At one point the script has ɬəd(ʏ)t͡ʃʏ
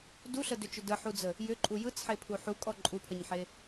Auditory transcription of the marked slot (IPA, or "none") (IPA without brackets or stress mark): ʏ